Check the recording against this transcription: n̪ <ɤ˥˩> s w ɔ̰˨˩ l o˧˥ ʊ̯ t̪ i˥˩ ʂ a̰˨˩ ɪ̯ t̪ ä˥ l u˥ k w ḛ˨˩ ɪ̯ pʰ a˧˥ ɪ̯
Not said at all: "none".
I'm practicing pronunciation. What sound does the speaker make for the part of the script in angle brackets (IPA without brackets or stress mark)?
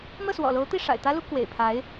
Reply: ɤ˥˩